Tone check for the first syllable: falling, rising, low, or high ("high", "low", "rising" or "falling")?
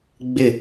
falling